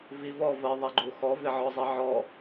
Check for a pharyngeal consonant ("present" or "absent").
present